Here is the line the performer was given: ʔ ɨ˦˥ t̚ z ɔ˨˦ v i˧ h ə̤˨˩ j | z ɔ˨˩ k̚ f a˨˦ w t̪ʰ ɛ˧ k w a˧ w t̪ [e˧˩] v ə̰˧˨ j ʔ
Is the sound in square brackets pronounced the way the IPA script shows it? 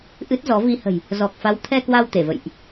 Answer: yes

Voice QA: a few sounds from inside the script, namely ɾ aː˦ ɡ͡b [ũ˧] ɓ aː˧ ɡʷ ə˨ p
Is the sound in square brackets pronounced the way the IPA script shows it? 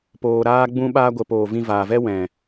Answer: no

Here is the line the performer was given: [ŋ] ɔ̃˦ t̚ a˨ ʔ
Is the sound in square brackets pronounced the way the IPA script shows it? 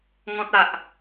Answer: yes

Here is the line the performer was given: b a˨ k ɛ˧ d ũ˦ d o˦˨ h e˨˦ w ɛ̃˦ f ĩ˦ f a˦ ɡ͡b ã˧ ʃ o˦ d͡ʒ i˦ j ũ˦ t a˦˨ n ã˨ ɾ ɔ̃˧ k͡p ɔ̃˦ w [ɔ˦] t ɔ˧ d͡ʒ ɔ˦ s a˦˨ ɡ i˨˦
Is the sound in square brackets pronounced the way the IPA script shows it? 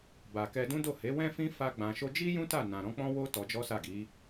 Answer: no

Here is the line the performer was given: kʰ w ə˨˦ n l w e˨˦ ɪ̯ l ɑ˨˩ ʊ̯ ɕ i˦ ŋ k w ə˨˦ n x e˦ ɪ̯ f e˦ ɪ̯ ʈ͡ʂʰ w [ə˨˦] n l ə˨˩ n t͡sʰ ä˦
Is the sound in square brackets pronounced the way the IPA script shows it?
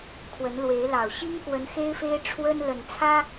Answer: no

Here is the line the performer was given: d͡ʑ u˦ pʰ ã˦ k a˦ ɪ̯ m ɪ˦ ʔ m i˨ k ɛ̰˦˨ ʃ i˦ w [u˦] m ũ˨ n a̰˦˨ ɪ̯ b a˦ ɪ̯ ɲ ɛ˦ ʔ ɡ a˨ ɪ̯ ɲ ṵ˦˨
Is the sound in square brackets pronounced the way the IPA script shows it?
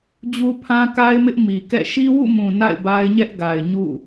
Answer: no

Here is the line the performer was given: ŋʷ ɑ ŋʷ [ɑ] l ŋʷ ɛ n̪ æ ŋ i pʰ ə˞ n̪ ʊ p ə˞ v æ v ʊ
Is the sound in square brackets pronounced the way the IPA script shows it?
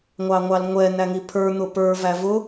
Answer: yes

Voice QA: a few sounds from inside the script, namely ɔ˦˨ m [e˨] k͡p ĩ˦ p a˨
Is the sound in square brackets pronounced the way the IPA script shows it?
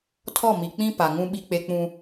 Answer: no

